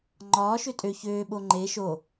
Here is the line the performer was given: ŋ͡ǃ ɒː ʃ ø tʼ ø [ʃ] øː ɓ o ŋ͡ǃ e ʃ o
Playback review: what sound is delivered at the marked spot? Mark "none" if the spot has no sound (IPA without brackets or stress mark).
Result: ç